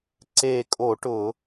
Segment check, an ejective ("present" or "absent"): present